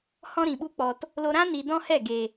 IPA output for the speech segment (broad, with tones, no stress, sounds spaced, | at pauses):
h ɔ̃˦ ɾ ĩ˨ ɓ u˦ k͡p ɔ˧ t | l o˦ ɾ ã˦ n i˨ d ɔ̃˦ h ɛ˦˨ ɡ e˨